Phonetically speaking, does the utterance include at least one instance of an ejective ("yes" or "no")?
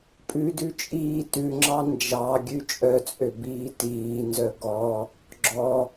yes